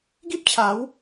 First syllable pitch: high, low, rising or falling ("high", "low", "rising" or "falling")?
high